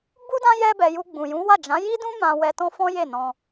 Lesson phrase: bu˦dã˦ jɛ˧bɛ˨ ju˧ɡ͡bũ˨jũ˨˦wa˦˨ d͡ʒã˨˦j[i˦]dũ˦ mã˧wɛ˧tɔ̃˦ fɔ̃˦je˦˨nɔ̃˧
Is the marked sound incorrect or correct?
correct